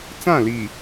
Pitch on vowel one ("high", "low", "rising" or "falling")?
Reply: falling